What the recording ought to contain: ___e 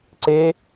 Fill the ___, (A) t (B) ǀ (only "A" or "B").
B